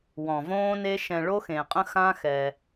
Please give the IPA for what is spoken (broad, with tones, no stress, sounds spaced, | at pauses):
w ɔ̃˨ v õː˦ n e˦ ʃ ɛ̃˧ ɭ o˦ x ẽ˨ qʼ ə̃˦ x ã˦ x ɛ˧